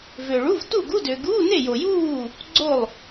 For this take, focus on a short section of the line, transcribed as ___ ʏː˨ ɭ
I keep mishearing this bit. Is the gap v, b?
v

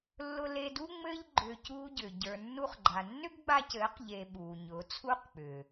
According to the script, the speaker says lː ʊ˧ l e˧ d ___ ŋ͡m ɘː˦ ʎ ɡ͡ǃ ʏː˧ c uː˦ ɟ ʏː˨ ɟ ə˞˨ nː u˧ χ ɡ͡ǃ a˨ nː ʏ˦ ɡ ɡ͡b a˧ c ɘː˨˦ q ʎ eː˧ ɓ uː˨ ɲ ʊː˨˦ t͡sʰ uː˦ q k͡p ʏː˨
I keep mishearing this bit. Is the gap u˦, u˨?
u˦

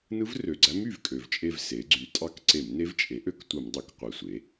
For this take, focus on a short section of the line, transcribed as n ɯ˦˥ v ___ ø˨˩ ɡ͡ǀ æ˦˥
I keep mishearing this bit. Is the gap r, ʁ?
r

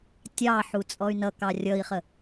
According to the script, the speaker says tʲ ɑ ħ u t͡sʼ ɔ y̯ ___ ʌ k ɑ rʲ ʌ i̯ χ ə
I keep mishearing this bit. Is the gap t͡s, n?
n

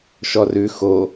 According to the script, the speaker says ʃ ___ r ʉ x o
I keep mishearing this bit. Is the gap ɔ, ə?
ɔ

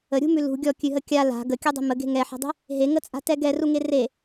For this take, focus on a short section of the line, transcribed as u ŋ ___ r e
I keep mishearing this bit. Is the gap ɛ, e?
e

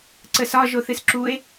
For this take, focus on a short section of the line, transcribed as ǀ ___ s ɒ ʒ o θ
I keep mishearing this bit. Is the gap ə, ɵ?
ə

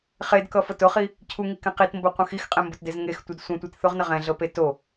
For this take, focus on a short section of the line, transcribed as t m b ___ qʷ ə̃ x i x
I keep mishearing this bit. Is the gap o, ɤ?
o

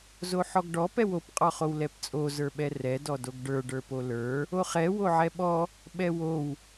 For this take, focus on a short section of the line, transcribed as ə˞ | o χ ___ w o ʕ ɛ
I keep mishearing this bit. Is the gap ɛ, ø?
ɛ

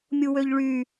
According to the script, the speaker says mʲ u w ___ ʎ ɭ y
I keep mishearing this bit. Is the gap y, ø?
ø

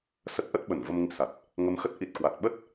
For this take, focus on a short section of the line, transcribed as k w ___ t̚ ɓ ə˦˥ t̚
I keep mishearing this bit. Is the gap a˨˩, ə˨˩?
a˨˩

